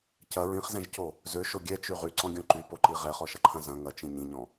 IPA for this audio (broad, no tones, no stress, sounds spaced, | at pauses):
c ɐ ɹ ĩ χ z ɛ̃ ʒ c o | z ø ʃ o ɡʲ ɛ t͡ʃ y ʁ y ǀ ɔ̃ ɡʲ ɔ̃ ǃ y p o ǃ i ʁ ɛ χ ɔ ʃ ɐ ǃʰ ɐ̃ z ɐ̃ ŋ ɐ t͡ʃ ĩ ɲ ĩ ɲ ɔ̃